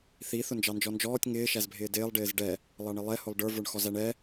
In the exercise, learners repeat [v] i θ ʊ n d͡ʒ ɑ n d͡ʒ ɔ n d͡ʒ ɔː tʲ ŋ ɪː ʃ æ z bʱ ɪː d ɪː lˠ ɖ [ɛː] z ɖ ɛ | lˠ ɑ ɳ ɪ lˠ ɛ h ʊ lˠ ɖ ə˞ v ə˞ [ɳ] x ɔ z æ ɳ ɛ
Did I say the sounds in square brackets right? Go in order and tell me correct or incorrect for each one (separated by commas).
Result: incorrect, incorrect, correct